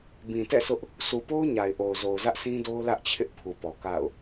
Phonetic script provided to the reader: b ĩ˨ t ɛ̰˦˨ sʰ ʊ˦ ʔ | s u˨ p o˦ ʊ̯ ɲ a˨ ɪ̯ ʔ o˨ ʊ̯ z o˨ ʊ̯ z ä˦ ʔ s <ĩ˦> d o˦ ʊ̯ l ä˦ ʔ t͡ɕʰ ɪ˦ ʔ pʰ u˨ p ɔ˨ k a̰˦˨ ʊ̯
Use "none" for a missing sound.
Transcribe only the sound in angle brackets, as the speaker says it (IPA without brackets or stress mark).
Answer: ĩ˦